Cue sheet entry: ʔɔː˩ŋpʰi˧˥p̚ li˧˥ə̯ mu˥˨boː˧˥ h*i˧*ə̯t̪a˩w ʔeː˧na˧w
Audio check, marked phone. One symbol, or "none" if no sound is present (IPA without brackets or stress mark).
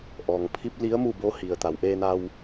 i˩